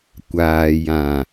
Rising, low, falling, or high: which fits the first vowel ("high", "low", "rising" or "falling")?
low